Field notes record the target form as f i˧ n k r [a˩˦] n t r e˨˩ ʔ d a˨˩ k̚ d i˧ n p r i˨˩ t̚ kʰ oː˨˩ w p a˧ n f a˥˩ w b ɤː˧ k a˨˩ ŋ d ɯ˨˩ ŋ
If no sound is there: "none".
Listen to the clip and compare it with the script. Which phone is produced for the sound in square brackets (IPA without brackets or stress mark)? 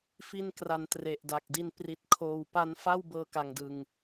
a˩˦